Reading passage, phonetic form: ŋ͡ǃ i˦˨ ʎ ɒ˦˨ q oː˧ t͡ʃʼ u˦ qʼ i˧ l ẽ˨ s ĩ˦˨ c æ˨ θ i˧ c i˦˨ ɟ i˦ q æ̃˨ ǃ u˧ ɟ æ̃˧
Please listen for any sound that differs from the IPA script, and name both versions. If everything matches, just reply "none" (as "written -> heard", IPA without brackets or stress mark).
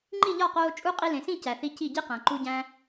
none